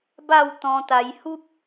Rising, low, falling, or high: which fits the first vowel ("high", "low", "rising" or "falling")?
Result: falling